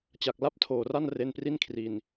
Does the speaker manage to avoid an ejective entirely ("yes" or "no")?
yes